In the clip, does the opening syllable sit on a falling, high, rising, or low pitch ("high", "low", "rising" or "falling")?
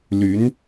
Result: rising